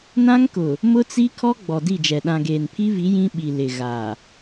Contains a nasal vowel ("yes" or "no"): yes